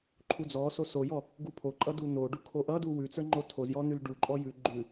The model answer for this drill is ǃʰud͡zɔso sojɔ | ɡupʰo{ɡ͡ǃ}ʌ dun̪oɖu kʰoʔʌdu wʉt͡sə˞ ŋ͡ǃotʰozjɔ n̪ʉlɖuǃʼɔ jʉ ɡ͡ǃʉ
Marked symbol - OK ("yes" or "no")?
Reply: no